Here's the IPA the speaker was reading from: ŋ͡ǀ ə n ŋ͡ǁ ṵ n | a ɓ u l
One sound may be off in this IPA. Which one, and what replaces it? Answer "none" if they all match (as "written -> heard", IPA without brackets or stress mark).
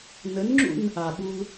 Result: ŋ͡ǀ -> n